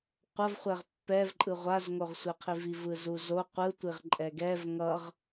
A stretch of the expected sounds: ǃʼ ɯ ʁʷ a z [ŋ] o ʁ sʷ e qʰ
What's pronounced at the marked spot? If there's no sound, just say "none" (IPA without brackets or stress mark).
ŋ